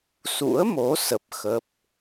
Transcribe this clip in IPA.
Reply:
s ṵ˧˥ ə̯ m o˨˦ s ə˦˥ p̚ x ə˦˥ p̚

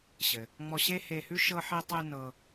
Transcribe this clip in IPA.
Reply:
ɕ ɘ˩ | ŋ͡m ɔ˧ ɕ e˥ h e˧ h ʉ˥ ʃ ɤ˧ ħ e˧ tˤ e˧ n ɤ˧

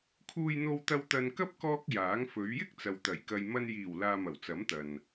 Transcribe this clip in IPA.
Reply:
kʰ uː˧ j n̪ o˧ w t̪ ɐ˧ w t̪ ɐ˧ n k ɐ˥ p̚ k ɔː˥ k̚ j aː˨˥ ŋ f ɵ˨˧ ɥ j ɪ˥ k̚ t͡s ɐ˨ w t̪ ɐ˨˩ j k ɐ˧ j m ɐ˧ n j iː˨˩ w l aː˧ m ɐ˨˩ w t͡s ɐ˨˥ m t̪ ɐ˨ n

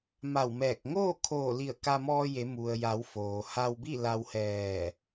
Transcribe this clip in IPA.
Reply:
m a˧˩ w m ɛː˧˩ k̚ ŋ oː˥˨ kʰ oː˧˩ l i˧˩ ə̯ k a˧ m ɔː˧ j e˩˧ m u˩ ə̯ j a˩˧ w f oː˩ h a˧ w b i˥˨ l a˧ w h ɛː˧˩

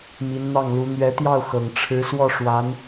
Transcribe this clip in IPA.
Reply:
m i˧˥ n n̪ ɑ˥˩ ŋ l u˧˥ n̪ ɥ ɛ˧˥ t̪ j ɑ˥˩ ʊ̯ x ɤ˨˩ ŋ ʈ͡ʂʰ ɻ̩˧˥ s w ɔ˥˩ ʂ w a˧˥ n

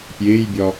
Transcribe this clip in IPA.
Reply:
pʲ eː j bʲ ɒ

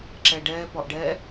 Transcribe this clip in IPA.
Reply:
ǁ ɛ ɖ ɛ p ɔ ʔ ɖ ɛ

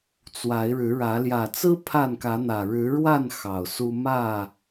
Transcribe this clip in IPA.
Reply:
t͡s w a˨˦ ɪ̯ ɻ ɻ̩˨˦ ɻ ä˨˦ l j ä˨˩ t͡s ɹ̩˦ pʰ a˥˨ n k ä˨˦ n̪ ä˨˩ ɻ ɻ̩˨˦ ɻ w a˥˨ n x ɑ˨˩ ʊ̯ s u˦ m ä˥˨

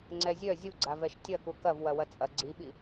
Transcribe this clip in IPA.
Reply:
ŋ͡ǀ ɛ zʲ œ zʲ u ɡ͡ǀ a v ɛ ʃ tʲ ɐ k u k ɐ v w ɐ w ɐ t͡sʼ ɐ ɡ͡ǀ i ɓ i

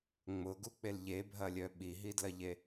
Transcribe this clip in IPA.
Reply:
ŋ͡m ʊ ɡ u k͡p e l ʎ e bʱ ɐ lʲ œ ɓ i ɦ i d l ɐ ʎ e

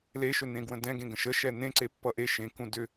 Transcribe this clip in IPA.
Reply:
l e ʃ ɵ n ẽ ɡ w ə̃ d ɛ̃ ɡ ẽ ɡ ə̃ ʃ ə ʃ ɛ n ẽ ǀ e pː ʌ ʔ e ʃ ẽ k ũ d ʏ

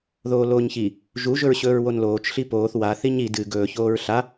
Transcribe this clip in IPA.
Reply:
ð oː l oː ɲ ç i | ʒ u ʒ ɵ ɹ ɕ ɵː ɹ w o n l oː t͡ʃ ɬ i p oː θ w a θ i ɲ i d ɨ ɡ ɵː ç oː ɹ ɬ a

